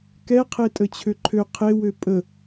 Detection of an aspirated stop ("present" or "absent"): present